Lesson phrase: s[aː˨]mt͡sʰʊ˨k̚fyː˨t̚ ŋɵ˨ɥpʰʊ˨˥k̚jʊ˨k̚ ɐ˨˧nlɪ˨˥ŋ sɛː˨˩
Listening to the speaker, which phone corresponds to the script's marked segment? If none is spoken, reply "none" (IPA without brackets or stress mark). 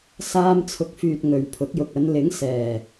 aː˧